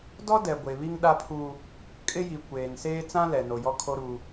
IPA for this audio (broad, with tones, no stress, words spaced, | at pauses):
dɔ˦dɛ˨ ɡʷe˨βi˦ŋɗa˦pʰu˦ | kʼɪ˦ji˨kʷeː˨nseː˦ t͡sã˦lɛ˨ no˨jɔ˦kʰo˦ɾu˦